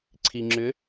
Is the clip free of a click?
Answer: no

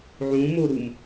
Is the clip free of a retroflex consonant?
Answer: yes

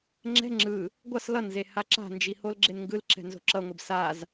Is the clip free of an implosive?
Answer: yes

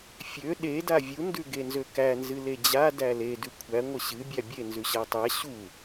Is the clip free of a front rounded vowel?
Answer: no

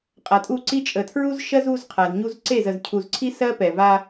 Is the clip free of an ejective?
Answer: no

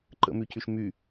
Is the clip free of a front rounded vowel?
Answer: no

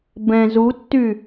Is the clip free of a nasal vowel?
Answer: no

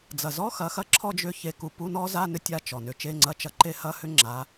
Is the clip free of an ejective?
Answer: yes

